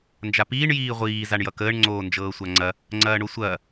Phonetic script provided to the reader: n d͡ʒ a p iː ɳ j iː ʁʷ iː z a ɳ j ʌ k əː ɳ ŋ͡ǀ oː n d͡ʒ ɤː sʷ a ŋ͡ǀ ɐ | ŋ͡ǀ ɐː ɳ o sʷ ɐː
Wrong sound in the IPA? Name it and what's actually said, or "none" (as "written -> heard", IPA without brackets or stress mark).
none